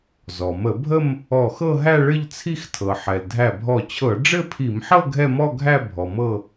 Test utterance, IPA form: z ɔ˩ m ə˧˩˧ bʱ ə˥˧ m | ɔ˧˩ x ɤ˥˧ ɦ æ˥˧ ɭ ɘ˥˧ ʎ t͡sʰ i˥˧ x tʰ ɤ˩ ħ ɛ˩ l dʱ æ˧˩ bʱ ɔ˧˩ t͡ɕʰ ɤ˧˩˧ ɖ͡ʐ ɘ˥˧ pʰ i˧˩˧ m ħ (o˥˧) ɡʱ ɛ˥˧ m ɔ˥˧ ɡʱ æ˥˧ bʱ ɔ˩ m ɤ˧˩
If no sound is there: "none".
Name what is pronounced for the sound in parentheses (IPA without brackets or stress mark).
ɤ˥˧